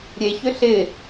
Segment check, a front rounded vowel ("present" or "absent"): present